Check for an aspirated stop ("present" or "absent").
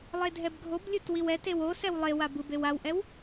absent